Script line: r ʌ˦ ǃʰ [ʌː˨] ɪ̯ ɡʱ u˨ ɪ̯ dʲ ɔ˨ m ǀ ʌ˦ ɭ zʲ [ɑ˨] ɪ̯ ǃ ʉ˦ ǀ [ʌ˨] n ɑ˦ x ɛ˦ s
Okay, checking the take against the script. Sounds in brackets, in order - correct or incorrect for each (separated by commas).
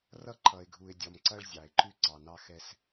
incorrect, correct, incorrect